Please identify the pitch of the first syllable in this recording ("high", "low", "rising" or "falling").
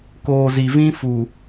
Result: low